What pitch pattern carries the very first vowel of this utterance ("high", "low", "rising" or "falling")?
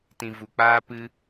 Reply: low